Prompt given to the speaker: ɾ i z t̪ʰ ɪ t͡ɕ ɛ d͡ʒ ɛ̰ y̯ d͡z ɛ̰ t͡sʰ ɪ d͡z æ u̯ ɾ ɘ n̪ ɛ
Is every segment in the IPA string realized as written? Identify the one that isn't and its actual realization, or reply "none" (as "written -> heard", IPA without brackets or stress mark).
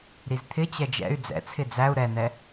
ɘ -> ɛ